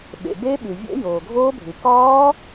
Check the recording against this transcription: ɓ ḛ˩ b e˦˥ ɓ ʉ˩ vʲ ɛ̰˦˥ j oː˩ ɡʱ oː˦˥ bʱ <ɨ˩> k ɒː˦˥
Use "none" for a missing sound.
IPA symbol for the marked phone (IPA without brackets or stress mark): ɨ˩